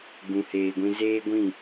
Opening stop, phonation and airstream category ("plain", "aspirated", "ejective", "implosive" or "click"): plain